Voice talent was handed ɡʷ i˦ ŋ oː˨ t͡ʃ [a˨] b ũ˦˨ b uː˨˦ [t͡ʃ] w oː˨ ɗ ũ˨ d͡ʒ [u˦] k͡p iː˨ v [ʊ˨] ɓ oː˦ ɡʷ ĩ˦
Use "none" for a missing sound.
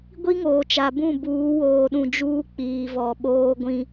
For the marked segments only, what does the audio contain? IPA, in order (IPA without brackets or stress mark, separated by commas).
a˨, none, uː˦, ɔ˨